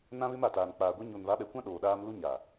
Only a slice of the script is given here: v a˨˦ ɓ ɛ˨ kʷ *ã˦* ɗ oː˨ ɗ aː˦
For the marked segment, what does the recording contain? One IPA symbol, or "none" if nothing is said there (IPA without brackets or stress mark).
ã˦